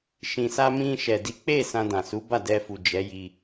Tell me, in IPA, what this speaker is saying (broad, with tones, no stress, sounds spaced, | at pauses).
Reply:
ʃ ĩ˨ s a˧ m ĩ˧ ʃ ɛ˨ d i˨˦ k͡p e˦˨ s ã˧ d ã˨ s u˨˦ b a˦˨ d ɛ˧ f u˨ d͡ʒ ɛ˨˦ j i˧